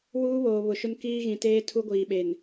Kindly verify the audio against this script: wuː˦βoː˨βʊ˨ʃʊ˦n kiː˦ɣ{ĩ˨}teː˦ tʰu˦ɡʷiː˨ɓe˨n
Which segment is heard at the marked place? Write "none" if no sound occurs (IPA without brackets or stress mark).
ĩ˨